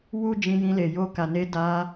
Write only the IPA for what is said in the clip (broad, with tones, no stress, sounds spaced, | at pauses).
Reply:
w u˦ d͡ʒ ĩ˧ j ĩ˧ l e˨ j o˧ k a˨ n e˧ d a˧